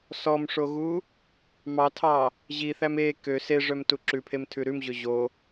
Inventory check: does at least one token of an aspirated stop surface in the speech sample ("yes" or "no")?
yes